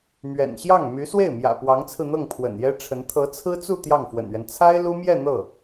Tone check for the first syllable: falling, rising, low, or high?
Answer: low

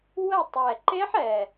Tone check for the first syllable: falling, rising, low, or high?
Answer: falling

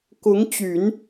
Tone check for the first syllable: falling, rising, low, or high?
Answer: rising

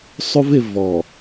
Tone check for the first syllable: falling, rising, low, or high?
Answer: high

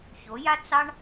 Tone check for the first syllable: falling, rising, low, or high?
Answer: rising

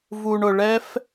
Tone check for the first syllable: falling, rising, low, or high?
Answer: low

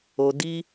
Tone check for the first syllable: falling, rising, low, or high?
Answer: low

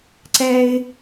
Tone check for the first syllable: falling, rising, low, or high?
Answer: high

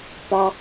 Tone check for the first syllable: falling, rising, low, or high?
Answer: high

